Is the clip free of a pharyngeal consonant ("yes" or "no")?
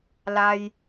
yes